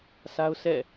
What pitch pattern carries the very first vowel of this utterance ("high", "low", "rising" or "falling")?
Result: high